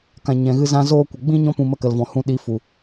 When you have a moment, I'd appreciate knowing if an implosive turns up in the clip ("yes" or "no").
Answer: yes